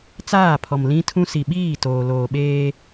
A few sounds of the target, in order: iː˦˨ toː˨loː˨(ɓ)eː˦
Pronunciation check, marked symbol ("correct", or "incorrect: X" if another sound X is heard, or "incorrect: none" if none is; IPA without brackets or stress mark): correct